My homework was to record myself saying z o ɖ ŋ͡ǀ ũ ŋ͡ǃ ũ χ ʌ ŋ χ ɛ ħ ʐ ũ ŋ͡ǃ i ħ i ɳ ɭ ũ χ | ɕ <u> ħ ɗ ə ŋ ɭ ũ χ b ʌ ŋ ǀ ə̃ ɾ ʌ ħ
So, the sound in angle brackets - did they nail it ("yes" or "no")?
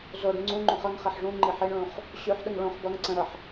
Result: no